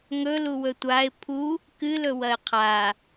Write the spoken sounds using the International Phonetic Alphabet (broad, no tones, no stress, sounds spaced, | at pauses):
ŋ ɵ l u w ɵ tʷ a ɪ̯ pʰ u | k ɨ l ɵ w ɐ ɪ̯ qʰ a